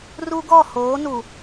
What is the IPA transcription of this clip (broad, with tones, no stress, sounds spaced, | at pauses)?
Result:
r u˦ ɡ ɔ˦˨ h oː˨˦ n u˨